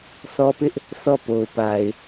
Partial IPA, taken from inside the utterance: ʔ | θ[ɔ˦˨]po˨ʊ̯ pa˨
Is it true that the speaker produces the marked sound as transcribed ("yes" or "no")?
yes